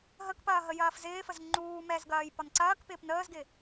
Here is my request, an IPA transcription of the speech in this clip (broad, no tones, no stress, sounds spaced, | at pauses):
ɦ ə k p ɐː ɦ ə j ɐː f z ɪː f ə z ŋ͡ǃ uː m ɛ z ɡ ɐː j p ɒ n ǀ ɐː k p ɪː p n əː z ɡ ɪ